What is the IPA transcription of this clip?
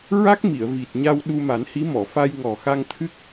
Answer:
ɹ a˦˥ k̚ m i˨˩˨ ə̯ v i˨˩ t̚ ɲ a˧ w ɗ u˧ m a˨˩˦ n h i˧˥ m ɔ˨˩˨ f a˧ j ŋ ɔ˨˩ x a˧ ŋ t̪ʰ ɨ˦˥ k̚

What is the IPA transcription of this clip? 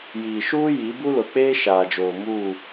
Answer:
j iː˨ ʃ uː˦ j i˨˦ b u˦ l ʊ˨ k͡p eː˦ ʃ aː˨ d͡ʒ oː˨ m uː˦˨

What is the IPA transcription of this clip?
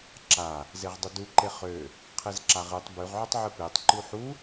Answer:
ǁ a | z e ʁ dˤ ʏ d u ǃ e χ ø | qʰ e z ǁ a ʁ ɨ tˤ b ʉ ʁ ʕ ʏ tˤ ʕ ɨ p e tˤ ǃ u ħ u

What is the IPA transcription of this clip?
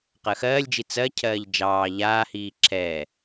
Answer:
q ɜ x ɜː lʲ d͡ʒ i t͡s ɜ cʰ ɜː ʎ d͡ʒ ɑː ʎ aː h iː ǁʰ ɛ

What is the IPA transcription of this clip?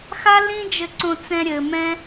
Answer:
x a˦ l ĩ˦ d͡ʒ ɘ˧ ǀ õ˧ t͡s ɛ̃˧ ɾʲ ɘ˧ m ɛ̃˦

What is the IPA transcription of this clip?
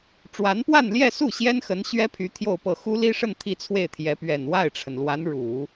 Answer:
ʈ͡ʂ w a˧˥ n p w a˥˧ n l j ɛ˥˧ s u˥˩ ɕ j ɛ˥ n x ə˧˥ n ɕ ɥ ɛ˥ pʰ y˧˥ t̪ʰ j o˥˧ ʊ̯ p ɤ˥˩ x u˥ l i˥ ʂ ə˥˧ n t̪ʰ i˥˧ t͡sʰ w e˥˩ ɪ̯ t̪ʰ j ɛ˧˥ p ɥ ɛ˨˩ n w a˥˩ ɪ̯ ʈ͡ʂʰ ə˩ n l w a˧˥ n ɻ u˨˩˦

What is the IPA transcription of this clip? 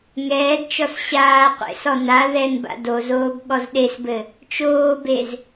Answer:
ŋ ɛː d t͡ʃ ɔ s ɕ aː qʷ ḛ s ɔ n a ð ɛ n b a̰ d o z oː b ɠ ɔ z ɗ e s b ɘ | t͡ʃ oː b e z

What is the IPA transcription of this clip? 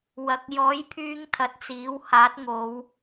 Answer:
w ɐ˨ k̚ j ɔː˨˥ j pʰ yː˧ ŋ t̪ʰ ɐ˨ t̚ t͡s iː˨˥ w h aː˨˥ t̚ ŋ o˨˧ w

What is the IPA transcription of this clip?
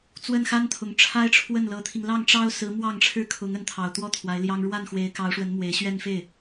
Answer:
t͡s w ə˥˩ n x a˥ n t̪ʰ ʊ˨˩ ŋ ʈ͡ʂʰ a˥ ɪ̯ ʈ͡ʂʰ w ə˥˩ n l ɤ˧˥ t̪ʰ i˧ ŋ l ɑ˥˩ ŋ ʈ͡ʂ ɑ˥ ʊ̯ s ɹ̩˧˥ m w ɑ˥˩ ŋ ʈ͡ʂʰ ɻ̩˥ kʰ ʊ˧˥ ŋ ə˧˥ n t̪ʰ ɑ˨˩ ʊ̯ t̪ w ɔ˥ t̪ʰ w a˧˥ ɪ̯ l j ɑ˥ ŋ ɻ w a˥˩ n x w e˧˥ ɪ̯ k ɑ˧˥ ʊ̯ ʂ w ə˧˥ n m w e˧˥ ɪ̯ ɕ ɥ ɛ˥˧ n f e˥˩ ɪ̯

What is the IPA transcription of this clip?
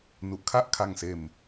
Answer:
n u˨˩ ʔ kʰ a˥˩ ʔ kʰ a˧ ŋ s eː˧ m

